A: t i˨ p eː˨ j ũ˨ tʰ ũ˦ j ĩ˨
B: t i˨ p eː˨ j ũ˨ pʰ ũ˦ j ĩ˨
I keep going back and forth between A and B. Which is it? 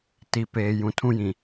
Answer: A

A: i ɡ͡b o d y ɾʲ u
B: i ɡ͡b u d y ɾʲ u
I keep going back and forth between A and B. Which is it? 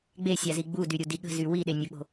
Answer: B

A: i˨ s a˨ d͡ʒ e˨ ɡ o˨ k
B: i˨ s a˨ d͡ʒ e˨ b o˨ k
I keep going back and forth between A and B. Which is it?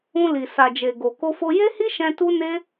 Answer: A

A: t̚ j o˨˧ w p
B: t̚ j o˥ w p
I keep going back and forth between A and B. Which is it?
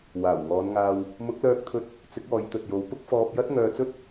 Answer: A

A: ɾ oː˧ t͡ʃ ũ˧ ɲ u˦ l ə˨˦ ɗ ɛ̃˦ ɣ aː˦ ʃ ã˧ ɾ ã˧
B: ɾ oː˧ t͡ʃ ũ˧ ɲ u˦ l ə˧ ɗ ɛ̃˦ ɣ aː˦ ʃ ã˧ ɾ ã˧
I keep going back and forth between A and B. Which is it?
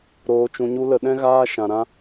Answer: B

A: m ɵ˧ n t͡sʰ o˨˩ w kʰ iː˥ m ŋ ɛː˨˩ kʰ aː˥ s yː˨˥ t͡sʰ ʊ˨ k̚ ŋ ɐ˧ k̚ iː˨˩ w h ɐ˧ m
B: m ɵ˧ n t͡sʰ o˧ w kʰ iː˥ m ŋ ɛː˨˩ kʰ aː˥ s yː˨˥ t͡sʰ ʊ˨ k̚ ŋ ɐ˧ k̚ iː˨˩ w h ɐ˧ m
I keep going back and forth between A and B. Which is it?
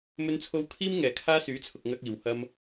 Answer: B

